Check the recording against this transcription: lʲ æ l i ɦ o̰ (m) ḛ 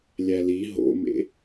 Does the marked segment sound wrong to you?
no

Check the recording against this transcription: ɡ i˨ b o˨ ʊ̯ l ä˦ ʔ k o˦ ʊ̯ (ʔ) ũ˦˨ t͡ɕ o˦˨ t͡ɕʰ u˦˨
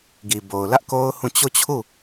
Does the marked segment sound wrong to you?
yes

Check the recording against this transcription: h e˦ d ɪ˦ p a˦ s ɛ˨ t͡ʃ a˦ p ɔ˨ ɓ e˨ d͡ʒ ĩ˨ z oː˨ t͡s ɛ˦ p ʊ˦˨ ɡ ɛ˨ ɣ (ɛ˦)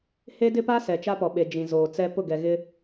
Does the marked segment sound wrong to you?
yes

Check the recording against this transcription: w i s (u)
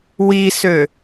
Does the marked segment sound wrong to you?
yes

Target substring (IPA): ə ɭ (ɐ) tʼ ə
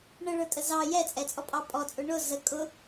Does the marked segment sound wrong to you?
yes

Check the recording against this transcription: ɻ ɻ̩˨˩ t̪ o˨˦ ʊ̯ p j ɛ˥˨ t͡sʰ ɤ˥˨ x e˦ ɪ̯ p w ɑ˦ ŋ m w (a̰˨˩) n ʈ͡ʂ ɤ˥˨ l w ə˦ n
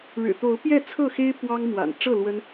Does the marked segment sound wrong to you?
no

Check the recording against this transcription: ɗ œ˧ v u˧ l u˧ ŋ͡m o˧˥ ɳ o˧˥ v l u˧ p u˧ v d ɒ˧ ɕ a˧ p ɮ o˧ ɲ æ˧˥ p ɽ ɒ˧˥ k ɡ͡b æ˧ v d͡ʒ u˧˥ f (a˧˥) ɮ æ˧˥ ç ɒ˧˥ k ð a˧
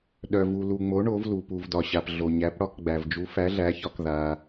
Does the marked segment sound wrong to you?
yes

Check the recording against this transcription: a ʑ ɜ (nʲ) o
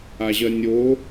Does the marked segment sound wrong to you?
no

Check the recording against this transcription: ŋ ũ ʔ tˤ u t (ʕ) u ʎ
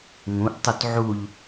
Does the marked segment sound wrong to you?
no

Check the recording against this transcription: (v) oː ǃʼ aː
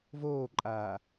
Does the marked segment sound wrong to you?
no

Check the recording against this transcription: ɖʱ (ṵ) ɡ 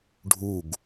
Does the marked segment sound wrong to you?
yes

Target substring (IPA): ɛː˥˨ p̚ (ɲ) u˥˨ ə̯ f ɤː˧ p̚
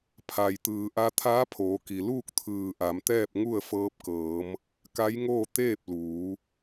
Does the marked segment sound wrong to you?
yes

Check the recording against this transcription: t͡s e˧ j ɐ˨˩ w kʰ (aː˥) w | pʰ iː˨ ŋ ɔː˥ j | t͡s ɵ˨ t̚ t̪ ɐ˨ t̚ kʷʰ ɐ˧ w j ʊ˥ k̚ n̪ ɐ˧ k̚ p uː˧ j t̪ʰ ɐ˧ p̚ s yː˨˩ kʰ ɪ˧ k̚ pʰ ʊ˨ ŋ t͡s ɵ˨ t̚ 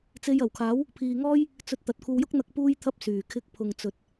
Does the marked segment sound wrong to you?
yes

